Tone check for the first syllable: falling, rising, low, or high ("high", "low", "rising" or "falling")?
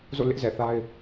falling